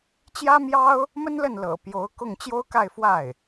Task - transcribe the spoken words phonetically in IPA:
t͡ɕjä˥mjɑ˥ʊ̯ | mə˥nlə˥˩n lɤ̰˨˩ pjo˧˥ʊ̯kʊ˥˩ŋ t͡ɕjo˥ʊ̯ka˥˧ɪ̯fwa˥˩ɪ̯

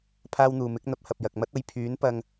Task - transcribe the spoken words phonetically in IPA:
pʰaː˥wn̪uː˨ mɪ˨˥k̚n̪ɐ˨˥p̚hɐ˨p̚ jɐ˨k̚ mɐ˥t̚ɐ˨˧j pʰyː˨˥n pɐ˧ŋ

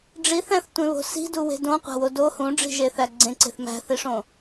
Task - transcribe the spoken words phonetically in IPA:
ɖ͡ʐiθæ̃θtʷẽβo̤ si̤duwe̤ dõqʷæ̤wo do hũɖ͡ʐi̤ʒeθæ ɡ͡ǀẽǀe̤θ mæ̤θiʂõ

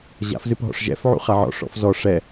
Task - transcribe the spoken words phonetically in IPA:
ʑa̰fzɨp ɦɔ̰ʂʒɛ̰fʕṵ χaʕɔ̰ ʂɔ̰fzɔ ʂɛ

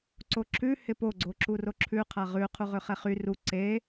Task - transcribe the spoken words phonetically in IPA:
ǀoǁʰʉ hɪpo ɡ͡ǀoǁuroǁʰʉ qʰaʁʉ qʰuʁøχɛχy ru ǀe

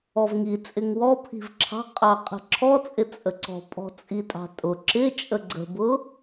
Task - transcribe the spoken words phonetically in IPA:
ɔvŋi t͡sʼɪŋwɔpʰi̤v ǁʰɑ̤ qʼɑ qʼə̤ǁʰɔt͡sʼɪ t͡sʼəǀɔ̤ pʼɔ̤t͡sʼitʼɑ̤tʼʊ ǁɪ t͡ʃʼəɡ͡ǀə̤bʊ

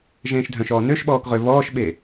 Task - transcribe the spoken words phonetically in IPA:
ʒẽːʃdʱœ̃ʃɔː nøʃɓɔːk ʁøβɔːʃɓe

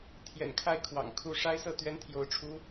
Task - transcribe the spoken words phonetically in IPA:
t̪ʰjɛ̰˨˩nkʰa˥˩ɪ̯kʰwɑ̰˨˩ŋ kʰu˥˩ ʂa˥ɪ̯sɤ˥˩ t̪ɥɛ˥nt̪ʰjo˧˥ʊ̯ʈ͡ʂʰu˧˥

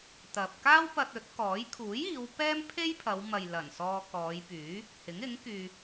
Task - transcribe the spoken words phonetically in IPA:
t̪ɐ˨p̚ kaː˥wpɐ˧t̚ ɵ˨˥t̚kɔː˨˥j kʰuː˨˥jiː˨˧w pɛː˥mpʰe˥jpʰɐ˨˧wmɐ˨j lɐ˨˩nsɔː˧ kɔː˨˧j pyː˨˥ | hɪ˨˥ŋɪ˨˥ŋkyː˧

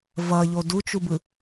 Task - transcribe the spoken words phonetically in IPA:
vʌʎo dut͡ʃubɯ

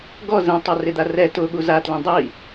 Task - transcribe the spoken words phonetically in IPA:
ɡɔ zẽtˤa rɪd̪arɛ tʊɠu zatlẽ dˤi

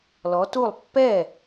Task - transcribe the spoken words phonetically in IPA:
lɔ˨˦tu˥˨lˠ pːɛ˥˨

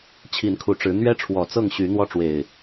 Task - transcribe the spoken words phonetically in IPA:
t͡ɕʰi˨˦nkʰu˨˩ʈ͡ʂɻ̩˨˦ n̪ɥɛ˦ʈ͡ʂʰwɔ˨˩ t͡sɤ˥˨ŋɕy˨˦ n̪wɔ˥˨ʈ͡ʂwe˨˩ɪ̯

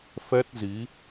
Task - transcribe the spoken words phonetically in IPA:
fɛ˦˥t̚zi˨˦

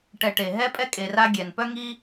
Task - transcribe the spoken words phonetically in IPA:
ʈɛ˨ʈe˩ ɦɛ˥pʼɛ˥kʼe˨ra˦ ɡʲɛ˩n pœ˥ŋi˥

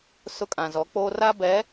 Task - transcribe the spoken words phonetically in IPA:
sʊ˦ kʼã˨zɔ˨˦k͡poː˦ ra˦bɛ˨˦

